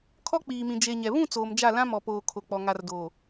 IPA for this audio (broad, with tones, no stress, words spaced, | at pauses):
kʰɔ˦k͡piː˨mĩ˨ d͡ʒe˨ ɲɛ˨ βũ˦˨ t͡soː˨md͡ʒa˦˨lã˦ mɔ˨poː˨kʰo˨k͡pɔ˨ ŋa˨rdoː˨